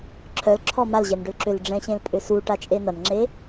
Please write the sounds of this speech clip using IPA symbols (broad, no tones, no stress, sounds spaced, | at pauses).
ǁʰ œ l ǁʰ ɔ m a l ʑ ɛ n ɖ ʏ l ǁ ʏ l ɖ͡ʐ ɛ̃ ɕ ẽ l pʼ ʏ s u ʈ a t͡ʃʼ e n ɐ n ŋ͡ǁ e